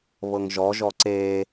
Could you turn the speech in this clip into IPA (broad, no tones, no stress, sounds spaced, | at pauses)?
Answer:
β ɤ ŋ ʒ ɔ ʒ ɔ ǀ e